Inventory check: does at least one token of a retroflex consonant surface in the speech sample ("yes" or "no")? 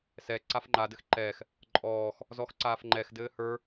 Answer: no